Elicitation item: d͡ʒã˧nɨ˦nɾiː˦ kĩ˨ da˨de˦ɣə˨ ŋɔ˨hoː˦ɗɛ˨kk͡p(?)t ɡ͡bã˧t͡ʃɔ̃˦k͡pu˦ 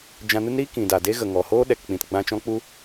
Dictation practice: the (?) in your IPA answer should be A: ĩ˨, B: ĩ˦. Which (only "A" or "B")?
A